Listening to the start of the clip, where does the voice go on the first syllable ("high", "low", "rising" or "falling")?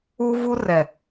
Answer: high